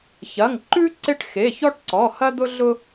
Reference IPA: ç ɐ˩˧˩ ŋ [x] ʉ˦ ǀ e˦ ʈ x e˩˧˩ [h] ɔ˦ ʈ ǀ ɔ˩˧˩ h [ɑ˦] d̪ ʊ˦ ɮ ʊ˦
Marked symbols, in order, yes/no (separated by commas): no, no, no